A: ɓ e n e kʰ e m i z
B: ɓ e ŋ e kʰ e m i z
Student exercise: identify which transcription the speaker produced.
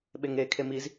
B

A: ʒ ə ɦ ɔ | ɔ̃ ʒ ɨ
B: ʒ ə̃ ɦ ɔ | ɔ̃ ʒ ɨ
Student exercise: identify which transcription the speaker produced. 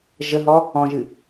A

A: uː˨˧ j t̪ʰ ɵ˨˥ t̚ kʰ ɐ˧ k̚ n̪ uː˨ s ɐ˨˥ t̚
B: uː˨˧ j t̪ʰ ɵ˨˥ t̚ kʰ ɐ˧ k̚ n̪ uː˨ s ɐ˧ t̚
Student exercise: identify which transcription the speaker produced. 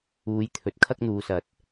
A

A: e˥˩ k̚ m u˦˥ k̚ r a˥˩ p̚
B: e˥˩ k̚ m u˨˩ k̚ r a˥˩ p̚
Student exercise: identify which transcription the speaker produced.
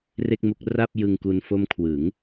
A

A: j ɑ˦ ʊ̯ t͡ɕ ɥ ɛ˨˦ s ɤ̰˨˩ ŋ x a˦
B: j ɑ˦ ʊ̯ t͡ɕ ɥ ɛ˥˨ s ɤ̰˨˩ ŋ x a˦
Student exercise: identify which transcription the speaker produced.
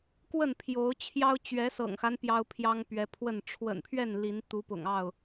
A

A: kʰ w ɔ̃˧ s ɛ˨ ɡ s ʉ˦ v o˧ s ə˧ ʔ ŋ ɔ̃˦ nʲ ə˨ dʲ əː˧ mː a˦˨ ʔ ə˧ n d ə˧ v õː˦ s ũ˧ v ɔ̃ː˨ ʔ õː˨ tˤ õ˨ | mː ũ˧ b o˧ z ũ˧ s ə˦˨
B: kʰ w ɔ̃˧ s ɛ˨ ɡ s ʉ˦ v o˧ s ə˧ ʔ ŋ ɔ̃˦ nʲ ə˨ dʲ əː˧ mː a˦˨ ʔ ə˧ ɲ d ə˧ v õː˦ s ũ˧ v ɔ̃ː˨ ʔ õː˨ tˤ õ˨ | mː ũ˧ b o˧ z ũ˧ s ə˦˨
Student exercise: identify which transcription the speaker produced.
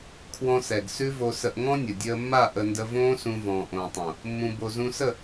A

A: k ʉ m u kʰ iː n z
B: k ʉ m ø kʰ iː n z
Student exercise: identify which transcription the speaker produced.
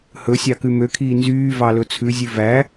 B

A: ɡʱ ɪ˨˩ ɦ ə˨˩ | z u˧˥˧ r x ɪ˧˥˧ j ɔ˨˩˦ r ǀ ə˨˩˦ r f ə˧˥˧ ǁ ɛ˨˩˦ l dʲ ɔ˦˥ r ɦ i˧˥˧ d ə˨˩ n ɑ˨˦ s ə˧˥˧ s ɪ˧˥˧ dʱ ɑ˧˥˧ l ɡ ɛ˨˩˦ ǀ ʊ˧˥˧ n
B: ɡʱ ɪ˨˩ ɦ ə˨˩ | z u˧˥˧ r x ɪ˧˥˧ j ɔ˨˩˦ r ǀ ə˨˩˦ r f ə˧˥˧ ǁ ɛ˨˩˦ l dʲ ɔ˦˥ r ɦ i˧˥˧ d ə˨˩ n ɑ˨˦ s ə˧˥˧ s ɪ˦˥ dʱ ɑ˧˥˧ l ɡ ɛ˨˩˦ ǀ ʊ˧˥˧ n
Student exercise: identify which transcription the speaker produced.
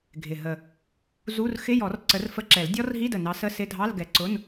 A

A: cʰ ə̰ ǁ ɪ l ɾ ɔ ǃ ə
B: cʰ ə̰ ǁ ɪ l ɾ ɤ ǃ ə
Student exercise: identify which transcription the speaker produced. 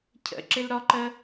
A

